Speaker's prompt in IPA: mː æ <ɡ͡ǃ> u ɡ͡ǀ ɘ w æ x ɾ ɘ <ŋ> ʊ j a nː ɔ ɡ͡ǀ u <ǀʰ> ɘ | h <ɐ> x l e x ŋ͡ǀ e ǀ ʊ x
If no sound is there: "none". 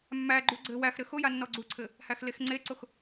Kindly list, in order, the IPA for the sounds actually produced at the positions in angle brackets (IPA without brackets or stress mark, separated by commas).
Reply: ɡ͡ǃ, x, ǀʰ, æ